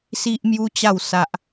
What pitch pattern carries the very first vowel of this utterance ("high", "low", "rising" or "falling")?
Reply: high